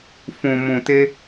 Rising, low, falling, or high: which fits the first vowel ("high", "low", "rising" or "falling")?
low